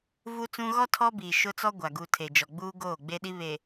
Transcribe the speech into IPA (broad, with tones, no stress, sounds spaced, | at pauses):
v u˦ t͡s ũ˦ ɣ ɔ˦ tʰ ɔ˦ b iː˨ ʃ ʊ˦ t͡s ɔ˦ ɡʷ a˨ ɡ u˨ tʰ e˨ d͡ʒ ɔ˨ ɡ͡b uː˦ ɡ oː˦˨ ɡ͡b e˦ ɗ i˦ β e˨